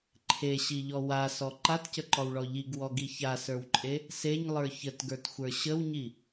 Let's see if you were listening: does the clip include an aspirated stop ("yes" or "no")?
yes